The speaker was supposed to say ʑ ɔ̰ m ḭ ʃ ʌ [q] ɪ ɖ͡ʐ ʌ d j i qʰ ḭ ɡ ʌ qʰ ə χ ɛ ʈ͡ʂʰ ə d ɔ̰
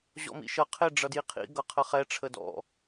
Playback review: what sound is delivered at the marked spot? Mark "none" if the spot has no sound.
qʰ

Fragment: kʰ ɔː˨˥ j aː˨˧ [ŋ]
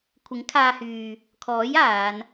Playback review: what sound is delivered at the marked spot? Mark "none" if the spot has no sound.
n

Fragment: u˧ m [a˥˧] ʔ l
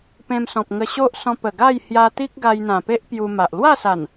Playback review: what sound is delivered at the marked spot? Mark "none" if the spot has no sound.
a˨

